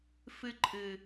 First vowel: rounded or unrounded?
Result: unrounded